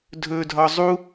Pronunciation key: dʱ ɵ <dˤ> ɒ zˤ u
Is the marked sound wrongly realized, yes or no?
yes